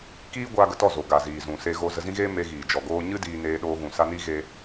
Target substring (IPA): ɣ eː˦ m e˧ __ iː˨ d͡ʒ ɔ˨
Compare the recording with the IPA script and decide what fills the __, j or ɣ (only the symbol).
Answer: ɣ